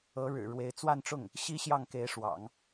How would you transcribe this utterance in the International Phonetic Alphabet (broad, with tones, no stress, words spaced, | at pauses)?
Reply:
ɤ˧˥ɻɻ̩˨˩ ɻwe˧˥ɪ̯t͡swa˥˧nʈ͡ʂʊ˥˩ŋ | ɕi˥ɕjɑ˥˩ŋ ke˧˥ɪ̯ʂwɑ̰˨˩˦ŋ